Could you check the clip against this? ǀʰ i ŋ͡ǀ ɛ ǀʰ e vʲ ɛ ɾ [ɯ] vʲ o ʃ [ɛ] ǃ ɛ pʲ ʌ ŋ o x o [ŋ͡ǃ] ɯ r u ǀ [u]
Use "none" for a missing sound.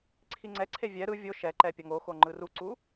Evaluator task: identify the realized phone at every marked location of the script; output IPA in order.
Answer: ɯ, ɛ, ŋ͡ǃ, u

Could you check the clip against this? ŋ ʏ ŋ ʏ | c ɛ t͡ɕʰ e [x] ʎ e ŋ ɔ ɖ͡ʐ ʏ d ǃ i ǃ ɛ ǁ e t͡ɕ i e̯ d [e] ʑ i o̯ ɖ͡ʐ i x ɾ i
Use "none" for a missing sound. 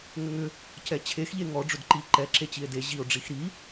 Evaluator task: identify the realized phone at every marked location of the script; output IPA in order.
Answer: x, e

